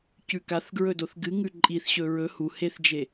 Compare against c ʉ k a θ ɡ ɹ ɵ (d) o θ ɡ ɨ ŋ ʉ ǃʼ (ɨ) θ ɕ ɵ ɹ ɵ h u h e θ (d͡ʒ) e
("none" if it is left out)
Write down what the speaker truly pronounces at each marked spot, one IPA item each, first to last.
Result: d, i, d͡ʒ

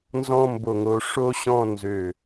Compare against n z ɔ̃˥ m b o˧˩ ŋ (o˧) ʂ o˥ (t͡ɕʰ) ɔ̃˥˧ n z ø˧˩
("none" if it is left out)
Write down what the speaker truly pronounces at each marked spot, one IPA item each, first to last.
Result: o˧, ɕ

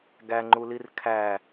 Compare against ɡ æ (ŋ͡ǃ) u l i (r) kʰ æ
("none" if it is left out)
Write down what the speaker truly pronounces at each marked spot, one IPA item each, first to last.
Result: ŋ͡ǃ, r

